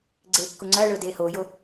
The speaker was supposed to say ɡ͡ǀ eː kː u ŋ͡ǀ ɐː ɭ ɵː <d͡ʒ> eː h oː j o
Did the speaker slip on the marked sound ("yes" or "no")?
yes